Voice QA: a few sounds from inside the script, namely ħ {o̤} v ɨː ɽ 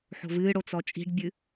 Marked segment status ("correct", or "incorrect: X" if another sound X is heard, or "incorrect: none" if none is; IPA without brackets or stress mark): correct